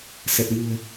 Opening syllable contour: low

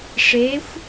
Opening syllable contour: rising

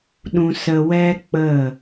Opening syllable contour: low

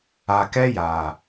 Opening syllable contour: low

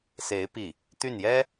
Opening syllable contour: rising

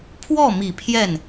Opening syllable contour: falling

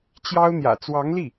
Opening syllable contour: high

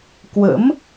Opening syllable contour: rising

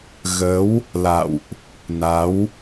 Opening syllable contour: rising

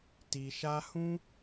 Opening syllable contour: low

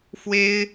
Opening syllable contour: high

